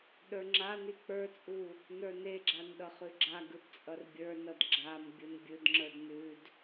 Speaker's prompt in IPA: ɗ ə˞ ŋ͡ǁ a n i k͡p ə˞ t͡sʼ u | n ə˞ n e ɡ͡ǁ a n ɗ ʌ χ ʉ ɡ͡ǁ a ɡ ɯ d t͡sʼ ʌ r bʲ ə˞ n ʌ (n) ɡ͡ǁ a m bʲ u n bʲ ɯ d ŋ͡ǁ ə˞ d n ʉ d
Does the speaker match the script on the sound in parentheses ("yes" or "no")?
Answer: no